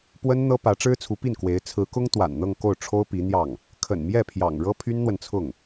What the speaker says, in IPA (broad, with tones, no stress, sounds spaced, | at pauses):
p w ə˥ n n̪ ɤ˥ p ä˧˥ ʈ͡ʂ ɻ̩˥ t͡sʰ u˧˥ p i˥˩ n k w e˧˥ ɪ̯ t͡sʰ ɹ̩˧˥ k ʊ˥ ŋ t̪ w a̰˨˩ n n̪ ɤ˥˧ ŋ k o˥˩ ʊ̯ ʈ͡ʂʰ o˥ ʊ̯ p i˧˥ n̪ j ɑ˥˩ ŋ | kʰ ə̰˨˩ n m j ɛ˥˩ pʰ j ɑ̰˨˩ ŋ ɻ ɤ˥ pʰ y˥ n n̪ w ə˨ n t͡sʰ ʊ˥˩ ŋ